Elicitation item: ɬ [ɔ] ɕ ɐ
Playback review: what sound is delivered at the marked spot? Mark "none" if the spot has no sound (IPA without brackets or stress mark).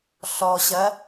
ɔ